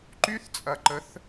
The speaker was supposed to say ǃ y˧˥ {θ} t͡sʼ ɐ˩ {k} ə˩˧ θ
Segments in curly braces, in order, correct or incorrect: correct, incorrect: ǃ

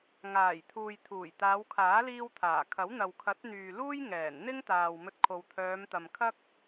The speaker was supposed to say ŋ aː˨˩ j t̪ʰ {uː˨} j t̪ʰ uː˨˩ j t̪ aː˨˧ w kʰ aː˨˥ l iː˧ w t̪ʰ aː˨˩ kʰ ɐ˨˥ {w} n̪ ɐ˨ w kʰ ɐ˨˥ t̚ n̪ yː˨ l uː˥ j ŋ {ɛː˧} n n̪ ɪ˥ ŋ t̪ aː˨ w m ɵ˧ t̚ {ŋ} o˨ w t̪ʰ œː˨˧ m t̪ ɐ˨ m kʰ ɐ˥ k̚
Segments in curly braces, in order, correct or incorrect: correct, correct, incorrect: ɛː˨˩, incorrect: kʰ

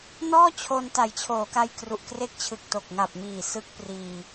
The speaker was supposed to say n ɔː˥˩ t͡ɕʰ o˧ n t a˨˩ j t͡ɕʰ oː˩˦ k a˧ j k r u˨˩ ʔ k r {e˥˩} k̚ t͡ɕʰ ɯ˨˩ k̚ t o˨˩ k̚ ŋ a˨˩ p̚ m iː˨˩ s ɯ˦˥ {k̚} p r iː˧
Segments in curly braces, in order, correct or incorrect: incorrect: e˦˥, correct

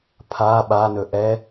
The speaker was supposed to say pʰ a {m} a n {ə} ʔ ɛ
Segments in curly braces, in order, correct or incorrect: incorrect: ɓ, incorrect: ɵ

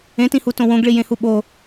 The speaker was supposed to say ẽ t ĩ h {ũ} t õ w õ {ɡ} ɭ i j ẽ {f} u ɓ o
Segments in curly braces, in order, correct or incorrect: incorrect: u, correct, incorrect: h

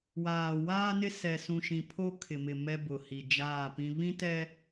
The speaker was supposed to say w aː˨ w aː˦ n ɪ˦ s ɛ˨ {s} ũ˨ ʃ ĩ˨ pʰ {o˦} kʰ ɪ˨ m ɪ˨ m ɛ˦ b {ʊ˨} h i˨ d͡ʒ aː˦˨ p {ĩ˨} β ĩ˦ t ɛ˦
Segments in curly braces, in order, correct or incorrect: correct, correct, correct, incorrect: ĩ˦

